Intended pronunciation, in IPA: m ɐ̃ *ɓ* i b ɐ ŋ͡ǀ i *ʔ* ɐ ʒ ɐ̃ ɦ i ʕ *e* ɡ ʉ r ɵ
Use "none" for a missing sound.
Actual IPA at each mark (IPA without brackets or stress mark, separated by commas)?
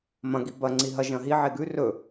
ɡ, ɦ, e